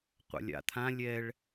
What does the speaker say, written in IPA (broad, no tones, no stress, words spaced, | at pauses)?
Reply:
qʷa̰lʲa̰t̪ʰã lʲɛɭ